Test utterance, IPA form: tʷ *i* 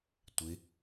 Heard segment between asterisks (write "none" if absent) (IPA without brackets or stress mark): ɪ